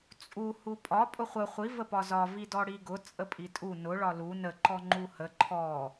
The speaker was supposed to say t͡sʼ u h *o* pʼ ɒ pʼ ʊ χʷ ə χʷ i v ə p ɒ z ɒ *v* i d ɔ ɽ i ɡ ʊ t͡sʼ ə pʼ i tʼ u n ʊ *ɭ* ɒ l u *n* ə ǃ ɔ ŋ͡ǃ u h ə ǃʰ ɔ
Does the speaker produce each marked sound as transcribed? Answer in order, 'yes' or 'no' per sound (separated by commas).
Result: no, yes, yes, yes